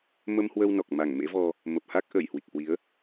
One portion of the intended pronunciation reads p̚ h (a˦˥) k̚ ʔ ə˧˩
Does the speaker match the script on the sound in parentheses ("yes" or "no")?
yes